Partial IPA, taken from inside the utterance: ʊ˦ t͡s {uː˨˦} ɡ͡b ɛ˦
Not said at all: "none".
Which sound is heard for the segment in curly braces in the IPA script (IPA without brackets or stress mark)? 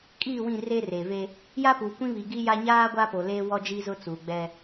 uː˨